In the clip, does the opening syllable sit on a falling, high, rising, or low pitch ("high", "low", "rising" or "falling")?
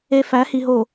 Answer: high